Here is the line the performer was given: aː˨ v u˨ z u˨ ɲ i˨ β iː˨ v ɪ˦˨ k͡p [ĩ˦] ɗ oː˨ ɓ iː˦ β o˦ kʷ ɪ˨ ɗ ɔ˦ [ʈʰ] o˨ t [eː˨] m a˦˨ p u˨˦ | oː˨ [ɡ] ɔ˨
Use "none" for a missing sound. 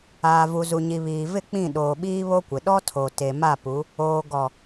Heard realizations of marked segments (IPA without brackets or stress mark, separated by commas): ĩ˦˨, tʰ, e˨, ɡ